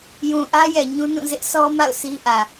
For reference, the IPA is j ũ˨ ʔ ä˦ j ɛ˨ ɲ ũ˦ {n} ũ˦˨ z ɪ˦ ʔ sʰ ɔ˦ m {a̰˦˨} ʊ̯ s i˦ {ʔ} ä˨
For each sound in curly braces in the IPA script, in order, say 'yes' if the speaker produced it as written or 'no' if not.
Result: yes, yes, yes

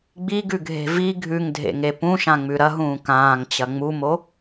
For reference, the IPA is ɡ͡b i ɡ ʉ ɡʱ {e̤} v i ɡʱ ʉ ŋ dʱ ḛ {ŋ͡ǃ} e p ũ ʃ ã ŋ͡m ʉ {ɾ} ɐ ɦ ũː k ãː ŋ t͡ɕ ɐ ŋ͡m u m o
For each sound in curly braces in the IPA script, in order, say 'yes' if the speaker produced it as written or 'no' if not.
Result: yes, no, yes

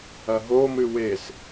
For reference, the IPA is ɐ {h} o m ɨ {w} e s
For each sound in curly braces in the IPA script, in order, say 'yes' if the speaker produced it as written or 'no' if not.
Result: no, yes

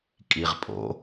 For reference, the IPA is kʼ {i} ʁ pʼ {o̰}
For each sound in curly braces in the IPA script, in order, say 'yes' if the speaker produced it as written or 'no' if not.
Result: yes, yes

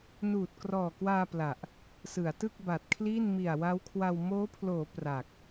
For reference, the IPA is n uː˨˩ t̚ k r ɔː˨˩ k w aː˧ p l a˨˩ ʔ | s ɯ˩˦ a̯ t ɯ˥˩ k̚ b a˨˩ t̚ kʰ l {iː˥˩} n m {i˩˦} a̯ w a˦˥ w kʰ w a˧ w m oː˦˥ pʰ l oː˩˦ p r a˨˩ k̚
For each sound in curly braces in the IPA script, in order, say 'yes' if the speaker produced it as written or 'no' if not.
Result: yes, no

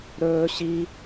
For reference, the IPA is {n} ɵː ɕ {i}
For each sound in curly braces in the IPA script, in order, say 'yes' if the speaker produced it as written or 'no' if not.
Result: no, yes

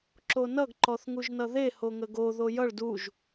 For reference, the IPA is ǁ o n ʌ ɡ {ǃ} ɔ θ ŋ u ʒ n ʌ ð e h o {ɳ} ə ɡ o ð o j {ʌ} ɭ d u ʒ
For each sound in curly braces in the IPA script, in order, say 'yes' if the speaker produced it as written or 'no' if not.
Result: yes, no, yes

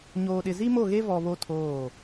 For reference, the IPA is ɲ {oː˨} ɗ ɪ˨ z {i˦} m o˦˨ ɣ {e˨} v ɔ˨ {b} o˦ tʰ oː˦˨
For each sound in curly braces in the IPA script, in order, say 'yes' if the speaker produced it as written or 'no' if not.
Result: yes, yes, no, no

